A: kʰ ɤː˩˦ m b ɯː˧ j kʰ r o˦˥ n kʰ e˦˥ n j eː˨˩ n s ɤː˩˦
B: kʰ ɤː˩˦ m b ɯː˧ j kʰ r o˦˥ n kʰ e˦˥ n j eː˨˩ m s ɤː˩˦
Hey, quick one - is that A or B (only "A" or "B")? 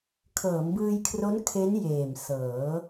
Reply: B